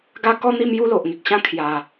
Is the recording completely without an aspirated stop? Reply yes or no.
no